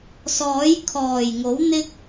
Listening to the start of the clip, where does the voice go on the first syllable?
rising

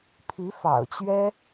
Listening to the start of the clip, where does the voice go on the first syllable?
rising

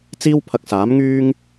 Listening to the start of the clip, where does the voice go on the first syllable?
high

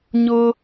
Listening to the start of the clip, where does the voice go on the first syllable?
high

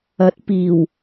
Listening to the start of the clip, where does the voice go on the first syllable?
rising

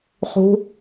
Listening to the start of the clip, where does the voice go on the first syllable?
high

